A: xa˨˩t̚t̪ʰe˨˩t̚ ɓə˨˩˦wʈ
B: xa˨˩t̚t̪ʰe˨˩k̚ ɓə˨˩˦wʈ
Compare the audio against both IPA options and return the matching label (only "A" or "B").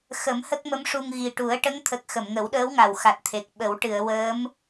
B